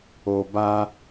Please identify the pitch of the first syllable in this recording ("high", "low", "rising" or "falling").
low